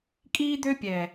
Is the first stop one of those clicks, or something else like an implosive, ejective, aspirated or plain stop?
ejective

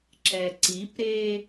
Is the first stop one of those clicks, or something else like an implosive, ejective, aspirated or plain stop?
click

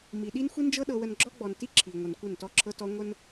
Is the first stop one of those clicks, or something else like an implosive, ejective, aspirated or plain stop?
implosive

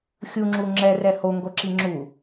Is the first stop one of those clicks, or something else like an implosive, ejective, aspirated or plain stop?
click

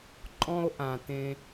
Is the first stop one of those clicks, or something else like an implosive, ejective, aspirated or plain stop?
click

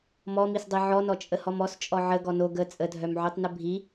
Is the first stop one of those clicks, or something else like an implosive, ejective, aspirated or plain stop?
plain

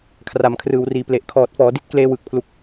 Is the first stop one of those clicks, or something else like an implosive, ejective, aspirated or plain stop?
aspirated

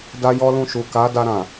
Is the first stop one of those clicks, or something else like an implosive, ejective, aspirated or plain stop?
plain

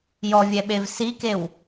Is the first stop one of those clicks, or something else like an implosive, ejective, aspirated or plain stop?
implosive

